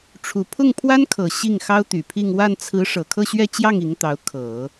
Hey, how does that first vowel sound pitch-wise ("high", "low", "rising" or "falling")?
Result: low